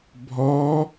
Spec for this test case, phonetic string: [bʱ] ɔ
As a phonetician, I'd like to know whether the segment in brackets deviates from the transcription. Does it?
no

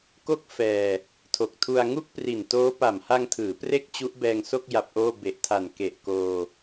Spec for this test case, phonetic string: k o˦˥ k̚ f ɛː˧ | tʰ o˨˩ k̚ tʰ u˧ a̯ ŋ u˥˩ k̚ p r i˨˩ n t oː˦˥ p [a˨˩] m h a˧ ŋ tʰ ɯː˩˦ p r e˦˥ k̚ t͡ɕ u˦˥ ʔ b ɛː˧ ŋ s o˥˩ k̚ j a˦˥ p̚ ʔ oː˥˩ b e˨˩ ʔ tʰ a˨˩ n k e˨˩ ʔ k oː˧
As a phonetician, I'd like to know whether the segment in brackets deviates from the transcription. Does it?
no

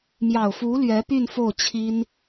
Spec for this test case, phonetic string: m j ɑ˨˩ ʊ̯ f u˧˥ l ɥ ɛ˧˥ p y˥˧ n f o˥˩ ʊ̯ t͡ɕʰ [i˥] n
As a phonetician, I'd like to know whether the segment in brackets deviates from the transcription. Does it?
no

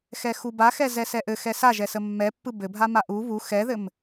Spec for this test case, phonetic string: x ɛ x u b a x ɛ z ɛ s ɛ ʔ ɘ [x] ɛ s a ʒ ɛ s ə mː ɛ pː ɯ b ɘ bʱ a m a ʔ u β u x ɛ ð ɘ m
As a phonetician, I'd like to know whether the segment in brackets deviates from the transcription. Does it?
no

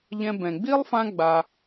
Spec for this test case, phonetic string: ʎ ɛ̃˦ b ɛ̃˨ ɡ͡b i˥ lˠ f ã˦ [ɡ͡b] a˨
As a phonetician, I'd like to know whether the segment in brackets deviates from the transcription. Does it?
no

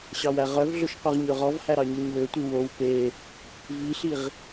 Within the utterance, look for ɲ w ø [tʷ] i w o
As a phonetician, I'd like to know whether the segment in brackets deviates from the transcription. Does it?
no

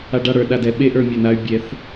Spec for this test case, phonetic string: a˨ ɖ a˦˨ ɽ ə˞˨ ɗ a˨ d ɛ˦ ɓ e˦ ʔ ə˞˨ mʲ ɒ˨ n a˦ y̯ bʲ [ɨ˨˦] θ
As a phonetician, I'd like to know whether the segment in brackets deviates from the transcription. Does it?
yes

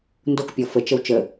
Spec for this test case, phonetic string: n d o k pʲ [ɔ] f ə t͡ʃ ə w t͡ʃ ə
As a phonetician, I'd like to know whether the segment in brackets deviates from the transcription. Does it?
no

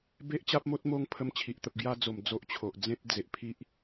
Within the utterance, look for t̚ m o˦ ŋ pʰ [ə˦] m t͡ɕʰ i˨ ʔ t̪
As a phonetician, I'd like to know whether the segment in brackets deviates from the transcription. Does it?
no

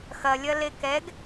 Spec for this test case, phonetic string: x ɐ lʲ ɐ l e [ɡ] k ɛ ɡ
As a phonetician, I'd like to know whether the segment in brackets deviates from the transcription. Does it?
yes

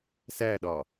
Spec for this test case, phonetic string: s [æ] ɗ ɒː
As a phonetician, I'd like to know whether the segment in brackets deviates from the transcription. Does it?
no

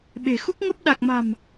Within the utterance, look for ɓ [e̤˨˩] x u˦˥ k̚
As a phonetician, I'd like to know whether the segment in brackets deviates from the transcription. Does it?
no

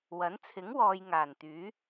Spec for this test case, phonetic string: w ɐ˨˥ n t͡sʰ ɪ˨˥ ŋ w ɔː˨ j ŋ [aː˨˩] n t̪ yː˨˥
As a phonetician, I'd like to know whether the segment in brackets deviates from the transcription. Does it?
no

